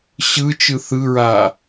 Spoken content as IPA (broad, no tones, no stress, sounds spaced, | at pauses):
ɕ ɯ t͡ʃ ɯ θ ɯ ɹ a